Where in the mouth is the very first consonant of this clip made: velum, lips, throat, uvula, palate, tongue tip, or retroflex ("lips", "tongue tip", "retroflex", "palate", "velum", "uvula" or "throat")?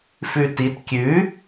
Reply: lips